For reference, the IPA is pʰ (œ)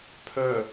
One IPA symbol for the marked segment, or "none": œ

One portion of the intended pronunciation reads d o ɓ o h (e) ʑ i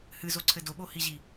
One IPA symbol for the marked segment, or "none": i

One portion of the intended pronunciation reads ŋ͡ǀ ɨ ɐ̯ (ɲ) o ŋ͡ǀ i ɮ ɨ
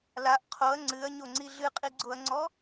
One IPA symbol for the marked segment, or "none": ɲ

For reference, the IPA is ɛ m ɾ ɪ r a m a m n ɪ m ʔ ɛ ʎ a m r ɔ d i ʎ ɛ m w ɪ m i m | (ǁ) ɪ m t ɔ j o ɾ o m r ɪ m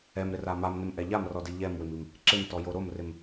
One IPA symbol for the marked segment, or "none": ǁ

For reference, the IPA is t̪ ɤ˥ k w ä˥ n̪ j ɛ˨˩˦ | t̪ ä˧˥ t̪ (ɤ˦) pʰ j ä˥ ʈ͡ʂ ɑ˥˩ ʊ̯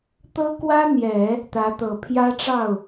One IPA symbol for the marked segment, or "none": ɤ˨˩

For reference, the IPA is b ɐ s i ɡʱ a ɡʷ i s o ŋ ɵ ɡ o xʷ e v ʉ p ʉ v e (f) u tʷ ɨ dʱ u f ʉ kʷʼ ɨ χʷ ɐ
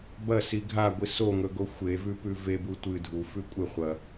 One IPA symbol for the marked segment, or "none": b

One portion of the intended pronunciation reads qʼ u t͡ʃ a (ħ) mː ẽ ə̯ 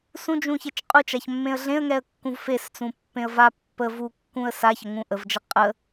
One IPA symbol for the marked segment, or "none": ç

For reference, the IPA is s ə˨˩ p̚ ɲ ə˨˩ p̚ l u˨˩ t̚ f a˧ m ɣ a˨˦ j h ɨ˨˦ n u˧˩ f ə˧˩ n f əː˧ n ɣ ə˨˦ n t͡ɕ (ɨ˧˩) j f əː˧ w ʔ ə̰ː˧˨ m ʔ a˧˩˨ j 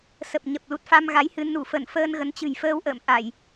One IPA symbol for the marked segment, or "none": ɨ̤˨˩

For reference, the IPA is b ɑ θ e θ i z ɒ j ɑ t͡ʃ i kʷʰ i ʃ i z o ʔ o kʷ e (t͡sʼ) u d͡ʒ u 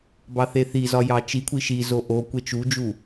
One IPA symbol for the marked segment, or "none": t͡ʃ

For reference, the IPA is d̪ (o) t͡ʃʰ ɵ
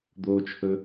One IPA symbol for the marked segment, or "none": o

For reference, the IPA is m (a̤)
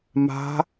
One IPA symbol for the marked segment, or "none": a̤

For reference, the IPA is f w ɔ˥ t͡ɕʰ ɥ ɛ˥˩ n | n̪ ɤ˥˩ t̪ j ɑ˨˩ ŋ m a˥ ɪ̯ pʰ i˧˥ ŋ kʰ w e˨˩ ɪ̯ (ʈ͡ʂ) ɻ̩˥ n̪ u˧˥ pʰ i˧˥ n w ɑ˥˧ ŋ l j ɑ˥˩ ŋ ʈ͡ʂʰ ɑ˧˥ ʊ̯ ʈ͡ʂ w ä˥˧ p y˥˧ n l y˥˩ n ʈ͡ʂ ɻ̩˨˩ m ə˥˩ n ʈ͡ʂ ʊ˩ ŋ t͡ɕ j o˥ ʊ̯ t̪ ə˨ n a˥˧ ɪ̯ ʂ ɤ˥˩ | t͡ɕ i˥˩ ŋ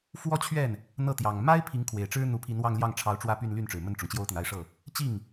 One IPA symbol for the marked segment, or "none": ʈ͡ʂ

